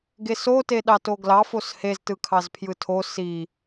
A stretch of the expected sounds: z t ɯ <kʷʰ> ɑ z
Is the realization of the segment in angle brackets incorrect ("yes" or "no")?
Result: yes